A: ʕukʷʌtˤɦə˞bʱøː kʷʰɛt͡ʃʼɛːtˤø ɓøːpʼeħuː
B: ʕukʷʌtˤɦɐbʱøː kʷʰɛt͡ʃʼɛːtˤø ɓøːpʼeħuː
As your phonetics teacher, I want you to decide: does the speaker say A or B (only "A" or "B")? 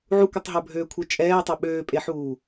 A